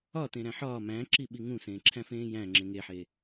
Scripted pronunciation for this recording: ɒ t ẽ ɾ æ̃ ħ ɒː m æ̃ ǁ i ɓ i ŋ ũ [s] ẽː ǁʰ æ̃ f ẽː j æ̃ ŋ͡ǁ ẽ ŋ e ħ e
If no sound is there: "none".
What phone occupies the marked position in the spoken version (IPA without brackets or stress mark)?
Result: s